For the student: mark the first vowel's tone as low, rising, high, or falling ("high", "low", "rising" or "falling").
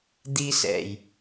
high